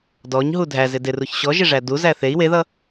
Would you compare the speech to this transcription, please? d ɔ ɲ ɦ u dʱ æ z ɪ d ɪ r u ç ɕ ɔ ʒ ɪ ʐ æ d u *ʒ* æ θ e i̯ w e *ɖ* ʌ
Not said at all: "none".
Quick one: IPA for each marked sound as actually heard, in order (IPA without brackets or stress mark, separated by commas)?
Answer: z, ð